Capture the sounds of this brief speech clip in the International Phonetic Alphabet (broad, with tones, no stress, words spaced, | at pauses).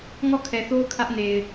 ŋɔ˦˨kʰɛ˨θo˦ʊ̯ kʰä˦ʔne˨ɪ̯